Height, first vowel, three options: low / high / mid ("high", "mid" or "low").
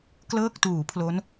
mid